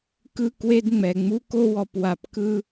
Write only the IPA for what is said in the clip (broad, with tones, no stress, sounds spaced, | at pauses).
k ɯ˦ k w e˦ d ŋ͡m ɛ˨ ŋ͡m u˦ k o˦ w ɔ˨ p w a˨ p k ɯ˦